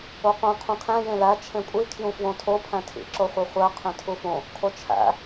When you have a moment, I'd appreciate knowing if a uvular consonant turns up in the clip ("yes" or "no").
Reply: yes